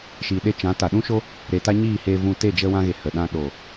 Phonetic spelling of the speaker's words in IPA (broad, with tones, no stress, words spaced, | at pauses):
ʃiː˨ɗe˧t͡ʃã˨˦ ta˨ɗũ˦ʃo˦ | ɾe˨ta˦ ɲiː˦˨heː˧vũ˧te˦˨ d͡ʒə˧wã˧ɣe˨ hə˨ɗã˧ ɗo˨